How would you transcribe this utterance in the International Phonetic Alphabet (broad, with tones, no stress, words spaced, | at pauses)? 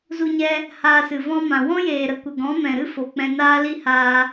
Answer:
zu˧ɲɛ˧ | haː˧sɨ˨vɔ̃˦ mã˨ wɔ̃˦jeː˨ɾə˨kʷə˨ ɡɔ̃˨˦mɛ̃˨ɾɨ˦ fo˨k͡pɛ̃˧ naː˦li˦haː˧